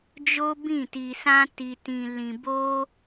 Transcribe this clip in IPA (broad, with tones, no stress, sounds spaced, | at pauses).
d͡ʒ o˦ b ĩ˦˨ t i˧ s ã˦ t i˧ t ĩ˧ l ĩ˧ b o˦